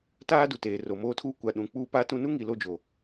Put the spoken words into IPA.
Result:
taː˦du˨teː˨ ro˨moː˦tʰuː˦ kʷa˨ ɗũ˨k͡puː˦paː˦tũ˦ nu˦ŋi˨ lo˦˨d͡ʒo˨

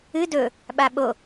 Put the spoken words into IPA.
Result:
ɨ dɵ | ɓaɓo

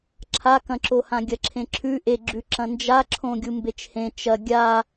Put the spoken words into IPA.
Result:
ǁʰakɐ̃ǁohã ɡʲɐǁʰẽǁʰʉ ʔeɡ͡ǁʉ ǁɐ̃nd͡ʒaǁʰõ ɡʲumbet͡ʃhẽ t͡ʃɐ ɡʲa

